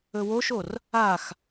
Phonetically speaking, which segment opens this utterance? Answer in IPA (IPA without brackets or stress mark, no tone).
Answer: ɵ